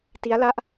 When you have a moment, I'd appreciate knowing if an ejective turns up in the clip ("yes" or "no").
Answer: no